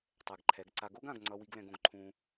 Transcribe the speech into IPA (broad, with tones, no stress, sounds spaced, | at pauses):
tˤ ɛ˨ ɡ ǃʰ ɛ˨˦ ɡ ǀ a˧ ɡ o˦ ɡ ã˧ ɡ ŋ͡ǀ ʌ˧ w i˧ ɡ l ɛ̃˧ ɡ õ˧ ɡ ǃʰ ũ˧